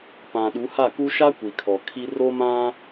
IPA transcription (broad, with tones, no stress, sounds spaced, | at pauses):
p ã˨ ɗ u˨˦ h a˦˨ k u˦ ʃ a˦ kʷ i˨ kʰ ɔ˨ kʰ i˦ r o˦ m ã˦